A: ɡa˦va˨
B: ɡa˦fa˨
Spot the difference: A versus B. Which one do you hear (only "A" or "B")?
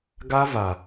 A